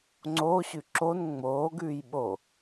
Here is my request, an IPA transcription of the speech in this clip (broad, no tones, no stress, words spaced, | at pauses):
ŋ͡ǀoːɕʉ ǁon ŋ͡moːɡʉːj ɓo